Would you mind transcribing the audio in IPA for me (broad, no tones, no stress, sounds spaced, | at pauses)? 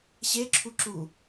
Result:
ɕ e ǁʰ u ǁ u